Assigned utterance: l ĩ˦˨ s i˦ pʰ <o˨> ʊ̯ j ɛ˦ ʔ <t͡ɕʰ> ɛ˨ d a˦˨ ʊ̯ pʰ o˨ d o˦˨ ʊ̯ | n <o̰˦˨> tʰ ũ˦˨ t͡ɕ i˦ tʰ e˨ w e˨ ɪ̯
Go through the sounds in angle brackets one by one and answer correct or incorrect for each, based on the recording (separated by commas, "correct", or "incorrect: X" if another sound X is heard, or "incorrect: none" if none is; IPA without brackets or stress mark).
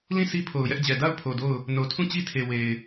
correct, incorrect: d͡ʑ, incorrect: o˨